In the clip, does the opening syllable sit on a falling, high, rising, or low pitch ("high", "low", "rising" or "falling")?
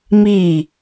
falling